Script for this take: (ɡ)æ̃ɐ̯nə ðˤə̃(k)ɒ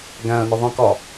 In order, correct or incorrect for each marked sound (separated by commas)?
correct, correct